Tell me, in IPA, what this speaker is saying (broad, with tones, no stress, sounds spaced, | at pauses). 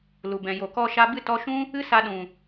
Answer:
l u˨ b ɛ̃˨ j o˨ k ɔ˧ ʃ a˧ b ɨ˦˨ t ɔ˦ ʃ ũ˦ | ɨ˦ s a˧ ɗ ũ˨